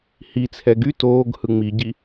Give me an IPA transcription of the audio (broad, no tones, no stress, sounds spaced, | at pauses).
h i t͡sʰ ɛ ɡ y t oː ɡ h ɯ ŋ͡m i ɟ i